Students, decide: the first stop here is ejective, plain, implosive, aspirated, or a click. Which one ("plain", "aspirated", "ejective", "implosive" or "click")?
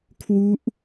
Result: aspirated